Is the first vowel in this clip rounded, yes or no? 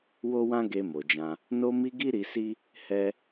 yes